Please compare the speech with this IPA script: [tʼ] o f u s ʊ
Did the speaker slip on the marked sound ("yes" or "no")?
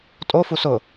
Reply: no